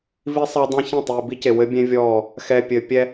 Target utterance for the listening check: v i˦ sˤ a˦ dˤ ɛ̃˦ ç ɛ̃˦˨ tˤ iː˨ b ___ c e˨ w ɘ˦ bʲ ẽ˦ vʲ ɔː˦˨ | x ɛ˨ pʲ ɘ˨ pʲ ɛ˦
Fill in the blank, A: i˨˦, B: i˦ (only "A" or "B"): B